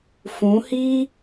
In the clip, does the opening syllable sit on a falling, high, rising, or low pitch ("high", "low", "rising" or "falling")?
rising